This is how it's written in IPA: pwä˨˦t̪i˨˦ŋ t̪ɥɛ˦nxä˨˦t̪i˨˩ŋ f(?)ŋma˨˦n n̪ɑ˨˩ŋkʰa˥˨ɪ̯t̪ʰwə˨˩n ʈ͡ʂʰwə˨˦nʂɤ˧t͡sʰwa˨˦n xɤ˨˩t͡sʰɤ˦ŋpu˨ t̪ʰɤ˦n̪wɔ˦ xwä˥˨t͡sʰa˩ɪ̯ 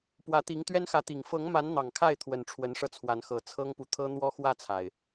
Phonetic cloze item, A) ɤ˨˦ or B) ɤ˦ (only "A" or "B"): A